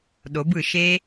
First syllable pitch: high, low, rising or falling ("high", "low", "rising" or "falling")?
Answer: rising